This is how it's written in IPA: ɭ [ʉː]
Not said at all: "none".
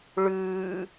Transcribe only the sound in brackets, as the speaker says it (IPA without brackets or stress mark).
ʉː